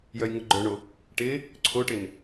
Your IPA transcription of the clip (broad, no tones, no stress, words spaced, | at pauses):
jœjŋʊɡ͡ǃœɳo | ʈɪ | ǀʰoʈɪn